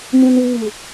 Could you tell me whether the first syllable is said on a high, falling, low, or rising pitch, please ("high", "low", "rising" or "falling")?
high